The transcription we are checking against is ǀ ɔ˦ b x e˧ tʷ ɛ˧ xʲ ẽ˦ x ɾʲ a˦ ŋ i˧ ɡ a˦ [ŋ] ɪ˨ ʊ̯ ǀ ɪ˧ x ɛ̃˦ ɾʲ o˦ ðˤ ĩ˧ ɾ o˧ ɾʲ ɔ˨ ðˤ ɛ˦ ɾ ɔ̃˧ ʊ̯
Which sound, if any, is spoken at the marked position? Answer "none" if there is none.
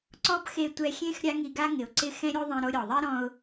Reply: ŋ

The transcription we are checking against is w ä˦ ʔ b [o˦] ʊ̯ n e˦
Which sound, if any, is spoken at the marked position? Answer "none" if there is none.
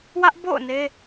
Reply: o̰˦˨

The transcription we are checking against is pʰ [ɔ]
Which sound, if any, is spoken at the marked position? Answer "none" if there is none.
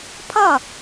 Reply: ʌ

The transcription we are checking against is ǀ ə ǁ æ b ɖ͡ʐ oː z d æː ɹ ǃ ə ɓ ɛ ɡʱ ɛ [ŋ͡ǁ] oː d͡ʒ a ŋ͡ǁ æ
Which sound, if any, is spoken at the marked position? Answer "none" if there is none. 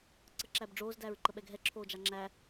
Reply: ǁʰ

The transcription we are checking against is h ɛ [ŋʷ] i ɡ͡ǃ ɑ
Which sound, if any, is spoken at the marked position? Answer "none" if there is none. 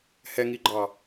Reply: ŋ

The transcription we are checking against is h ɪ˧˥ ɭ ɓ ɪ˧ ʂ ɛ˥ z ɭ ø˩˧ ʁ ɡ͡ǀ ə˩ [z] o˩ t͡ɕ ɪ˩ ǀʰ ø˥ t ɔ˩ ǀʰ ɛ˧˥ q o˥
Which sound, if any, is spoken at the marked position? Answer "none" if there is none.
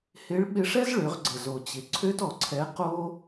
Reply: z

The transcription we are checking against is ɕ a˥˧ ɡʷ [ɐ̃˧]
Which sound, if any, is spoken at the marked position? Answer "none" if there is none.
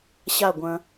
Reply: ɐ̃˧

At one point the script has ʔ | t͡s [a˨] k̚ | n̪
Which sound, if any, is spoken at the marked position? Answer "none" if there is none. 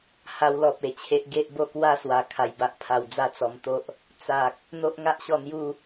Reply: a˨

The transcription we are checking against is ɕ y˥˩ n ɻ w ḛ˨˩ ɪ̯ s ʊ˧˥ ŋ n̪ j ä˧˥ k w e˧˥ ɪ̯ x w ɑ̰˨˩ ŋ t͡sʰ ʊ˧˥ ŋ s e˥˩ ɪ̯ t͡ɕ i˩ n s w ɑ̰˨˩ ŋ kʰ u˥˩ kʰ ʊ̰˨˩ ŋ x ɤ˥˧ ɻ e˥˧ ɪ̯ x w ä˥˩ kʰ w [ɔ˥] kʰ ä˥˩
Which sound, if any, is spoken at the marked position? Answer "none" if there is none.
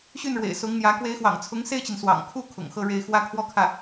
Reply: ɔ˥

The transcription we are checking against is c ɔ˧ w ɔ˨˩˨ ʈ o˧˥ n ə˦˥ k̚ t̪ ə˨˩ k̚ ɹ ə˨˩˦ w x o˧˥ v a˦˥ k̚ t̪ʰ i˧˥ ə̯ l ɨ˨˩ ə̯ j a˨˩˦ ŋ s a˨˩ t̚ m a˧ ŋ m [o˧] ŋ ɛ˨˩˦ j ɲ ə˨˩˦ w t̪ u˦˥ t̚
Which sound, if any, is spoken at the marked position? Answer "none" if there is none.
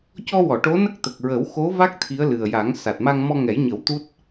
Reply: ɔ˧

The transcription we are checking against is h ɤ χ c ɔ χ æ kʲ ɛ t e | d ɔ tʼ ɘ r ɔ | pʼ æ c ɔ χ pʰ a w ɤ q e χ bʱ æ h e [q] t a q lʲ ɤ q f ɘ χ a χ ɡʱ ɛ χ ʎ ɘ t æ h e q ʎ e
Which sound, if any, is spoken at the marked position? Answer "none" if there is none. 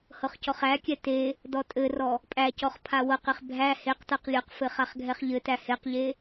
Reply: q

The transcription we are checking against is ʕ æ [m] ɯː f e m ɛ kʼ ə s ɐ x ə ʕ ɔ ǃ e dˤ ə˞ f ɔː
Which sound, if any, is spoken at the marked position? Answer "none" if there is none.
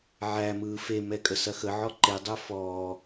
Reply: m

